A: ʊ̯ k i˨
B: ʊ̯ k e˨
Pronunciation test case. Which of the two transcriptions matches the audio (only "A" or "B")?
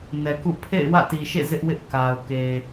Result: B